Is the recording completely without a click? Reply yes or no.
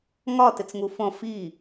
yes